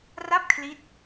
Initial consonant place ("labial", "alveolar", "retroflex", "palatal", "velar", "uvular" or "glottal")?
alveolar